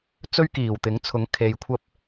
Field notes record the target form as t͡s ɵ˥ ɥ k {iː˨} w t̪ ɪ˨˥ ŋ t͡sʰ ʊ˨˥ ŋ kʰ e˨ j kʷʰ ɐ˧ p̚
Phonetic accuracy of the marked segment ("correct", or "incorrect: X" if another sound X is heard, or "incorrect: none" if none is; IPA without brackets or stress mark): incorrect: iː˨˩